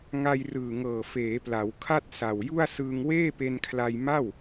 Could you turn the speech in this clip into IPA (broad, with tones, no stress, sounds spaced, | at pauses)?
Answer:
ŋ a˧ j r ɯː˨˩ ŋ ɤː˨˩ f eː˩˦ p l a˩˦ w kʰ a˥˩ t̚ s a˨˩ w j u˥˩ a̯ s ɯː˧ ŋ w eː˥˩ p e˧ n kʰ l a˧ j m a˥˩ w